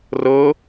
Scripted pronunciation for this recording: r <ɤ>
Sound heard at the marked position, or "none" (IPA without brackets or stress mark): ɤ